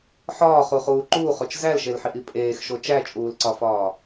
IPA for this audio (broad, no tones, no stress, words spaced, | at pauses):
ħɒːχuχuː ǃuːχot͡ʃ zælʃelħiʔi pʼeːxʃo t͡ʃæt͡ʃʼuːlǀɒfɒː